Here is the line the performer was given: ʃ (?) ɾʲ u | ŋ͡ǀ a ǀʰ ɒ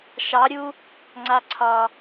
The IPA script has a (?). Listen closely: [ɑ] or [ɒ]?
ɑ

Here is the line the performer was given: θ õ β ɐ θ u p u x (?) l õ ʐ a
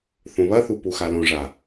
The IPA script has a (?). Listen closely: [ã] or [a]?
a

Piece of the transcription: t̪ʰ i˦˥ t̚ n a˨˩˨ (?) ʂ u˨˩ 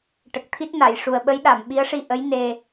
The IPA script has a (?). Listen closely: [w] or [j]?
j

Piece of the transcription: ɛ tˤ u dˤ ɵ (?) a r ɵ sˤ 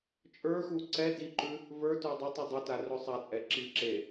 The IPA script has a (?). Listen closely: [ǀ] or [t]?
t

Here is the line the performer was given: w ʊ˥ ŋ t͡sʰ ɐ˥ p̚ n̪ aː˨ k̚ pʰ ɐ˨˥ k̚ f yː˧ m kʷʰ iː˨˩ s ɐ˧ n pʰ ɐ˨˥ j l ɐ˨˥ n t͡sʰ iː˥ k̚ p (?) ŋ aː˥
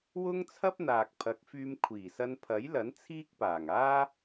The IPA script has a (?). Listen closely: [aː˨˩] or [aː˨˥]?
aː˨˩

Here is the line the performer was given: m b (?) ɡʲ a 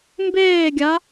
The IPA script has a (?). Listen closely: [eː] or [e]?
eː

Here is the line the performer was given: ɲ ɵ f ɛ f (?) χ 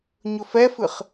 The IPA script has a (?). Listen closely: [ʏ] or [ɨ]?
ɨ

